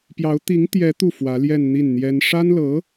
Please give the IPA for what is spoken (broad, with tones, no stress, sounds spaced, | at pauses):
p j ɑ˧˥ ʊ̯ t̪ i˧˥ ŋ t̪ j ɛ˧˥ t̪ u˥˩ f w ä˧˥ l j ɛ˥˧ n n̪ i˥˩ n n̪ j ɛ˥ n ʂ a˥ n l ɤ˧˥